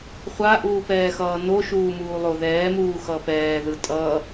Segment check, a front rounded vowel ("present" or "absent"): absent